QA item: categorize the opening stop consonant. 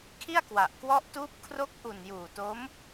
aspirated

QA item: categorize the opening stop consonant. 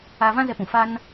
plain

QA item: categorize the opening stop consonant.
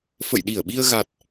implosive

